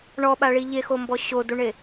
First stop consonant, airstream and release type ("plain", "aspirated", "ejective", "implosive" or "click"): implosive